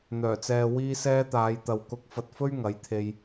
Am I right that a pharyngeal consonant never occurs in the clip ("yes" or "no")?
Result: yes